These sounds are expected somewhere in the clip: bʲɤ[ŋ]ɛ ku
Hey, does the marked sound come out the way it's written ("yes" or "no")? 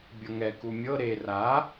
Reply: yes